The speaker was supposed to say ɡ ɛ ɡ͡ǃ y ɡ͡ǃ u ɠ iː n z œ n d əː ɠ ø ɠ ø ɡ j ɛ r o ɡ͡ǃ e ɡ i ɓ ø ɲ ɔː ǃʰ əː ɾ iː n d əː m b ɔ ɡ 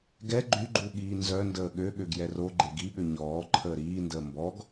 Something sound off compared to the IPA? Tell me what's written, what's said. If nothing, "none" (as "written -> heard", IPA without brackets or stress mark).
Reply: none